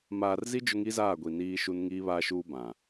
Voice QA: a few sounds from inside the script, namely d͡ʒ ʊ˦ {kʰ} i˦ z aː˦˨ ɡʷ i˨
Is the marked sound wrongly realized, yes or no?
yes